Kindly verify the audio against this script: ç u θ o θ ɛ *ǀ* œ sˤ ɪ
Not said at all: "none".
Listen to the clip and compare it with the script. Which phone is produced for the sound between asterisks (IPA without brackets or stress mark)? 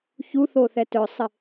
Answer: t